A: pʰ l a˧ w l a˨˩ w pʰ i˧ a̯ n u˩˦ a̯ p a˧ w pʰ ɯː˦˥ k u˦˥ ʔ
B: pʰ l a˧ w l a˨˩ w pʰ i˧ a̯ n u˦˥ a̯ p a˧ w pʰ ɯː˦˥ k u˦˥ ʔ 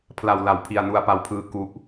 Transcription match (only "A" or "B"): B